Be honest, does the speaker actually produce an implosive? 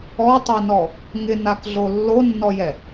no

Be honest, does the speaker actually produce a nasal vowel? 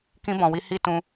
yes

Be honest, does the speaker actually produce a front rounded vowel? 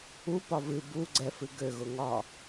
yes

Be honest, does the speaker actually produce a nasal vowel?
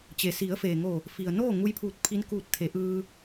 no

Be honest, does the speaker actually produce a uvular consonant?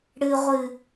yes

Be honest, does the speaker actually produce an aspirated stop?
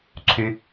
yes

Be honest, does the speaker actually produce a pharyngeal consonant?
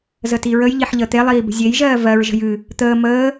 yes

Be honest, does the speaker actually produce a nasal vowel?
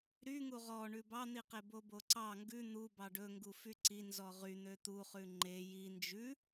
no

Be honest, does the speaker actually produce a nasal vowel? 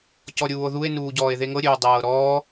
no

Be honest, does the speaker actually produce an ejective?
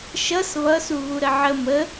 no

